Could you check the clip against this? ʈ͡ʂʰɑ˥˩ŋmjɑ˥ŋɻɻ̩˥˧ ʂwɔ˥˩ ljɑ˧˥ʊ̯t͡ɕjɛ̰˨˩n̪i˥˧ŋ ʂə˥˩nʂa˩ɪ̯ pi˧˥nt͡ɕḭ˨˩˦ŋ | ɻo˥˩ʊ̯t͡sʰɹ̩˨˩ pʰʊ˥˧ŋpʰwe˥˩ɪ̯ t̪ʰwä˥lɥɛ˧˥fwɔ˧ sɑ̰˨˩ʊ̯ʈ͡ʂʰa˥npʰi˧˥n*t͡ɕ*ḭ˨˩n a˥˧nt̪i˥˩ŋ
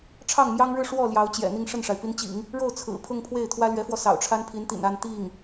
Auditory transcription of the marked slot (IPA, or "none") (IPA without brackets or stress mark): t̪